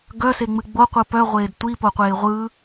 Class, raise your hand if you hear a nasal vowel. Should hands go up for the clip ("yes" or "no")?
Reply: no